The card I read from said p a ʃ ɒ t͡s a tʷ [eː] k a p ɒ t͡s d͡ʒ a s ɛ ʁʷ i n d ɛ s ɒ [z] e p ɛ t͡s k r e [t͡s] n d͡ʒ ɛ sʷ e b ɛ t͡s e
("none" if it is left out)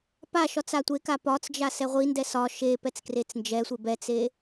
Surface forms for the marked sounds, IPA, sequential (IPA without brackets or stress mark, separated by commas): e, ʃ, t͡s